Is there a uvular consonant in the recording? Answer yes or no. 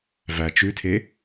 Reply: no